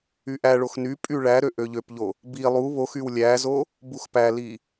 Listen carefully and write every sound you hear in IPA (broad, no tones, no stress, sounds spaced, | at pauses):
y ʔ æ ɭ o x n y pʼ y ɭ æ ɾ ø ʔ ø ʎ ø p ʎ o | b i lˠ u β o x y w lʲ æ z o | b u x p æ l i